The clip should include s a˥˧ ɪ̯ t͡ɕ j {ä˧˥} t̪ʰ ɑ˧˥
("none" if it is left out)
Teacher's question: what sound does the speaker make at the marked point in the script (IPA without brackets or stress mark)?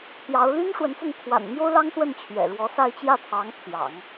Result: ä˥˩